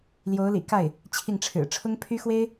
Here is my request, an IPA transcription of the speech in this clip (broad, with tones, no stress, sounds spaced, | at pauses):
l j o˧˥ ʊ̯ l ḭ˨˩ k a˥˩ ɪ̯ | t͡ɕʰ i˥˩ ŋ ʈ͡ʂʰ ɻ̩˨˩ ʈ͡ʂʰ ʊ˥ ŋ pʰ y˥ x w e˥ ɪ̯